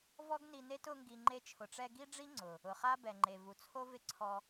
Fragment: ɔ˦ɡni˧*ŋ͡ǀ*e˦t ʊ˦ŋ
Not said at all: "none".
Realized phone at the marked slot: n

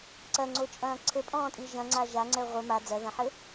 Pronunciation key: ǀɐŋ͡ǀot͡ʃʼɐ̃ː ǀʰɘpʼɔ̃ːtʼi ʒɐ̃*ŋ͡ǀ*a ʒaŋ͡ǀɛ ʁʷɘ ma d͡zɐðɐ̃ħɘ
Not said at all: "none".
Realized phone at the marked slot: ŋ͡ǀ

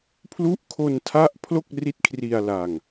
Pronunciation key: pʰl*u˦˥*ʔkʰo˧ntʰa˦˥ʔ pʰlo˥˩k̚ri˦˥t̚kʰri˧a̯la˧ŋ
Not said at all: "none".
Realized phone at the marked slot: u˦˥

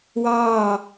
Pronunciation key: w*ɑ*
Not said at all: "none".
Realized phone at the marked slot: ɑ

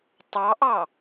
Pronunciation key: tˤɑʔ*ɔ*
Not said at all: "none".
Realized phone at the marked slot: ɑ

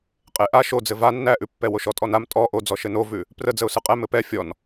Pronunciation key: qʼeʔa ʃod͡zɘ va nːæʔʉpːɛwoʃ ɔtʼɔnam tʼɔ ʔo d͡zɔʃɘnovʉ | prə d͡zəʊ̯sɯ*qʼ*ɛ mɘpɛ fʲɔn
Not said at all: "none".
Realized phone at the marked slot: qʼ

